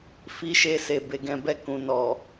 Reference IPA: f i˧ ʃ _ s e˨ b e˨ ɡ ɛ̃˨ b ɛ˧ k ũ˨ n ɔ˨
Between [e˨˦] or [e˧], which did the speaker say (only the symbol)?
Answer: e˧